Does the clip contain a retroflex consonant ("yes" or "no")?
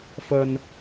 no